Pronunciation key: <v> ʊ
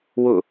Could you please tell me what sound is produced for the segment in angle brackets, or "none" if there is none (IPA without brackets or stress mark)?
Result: w